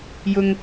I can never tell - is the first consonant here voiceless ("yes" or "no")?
no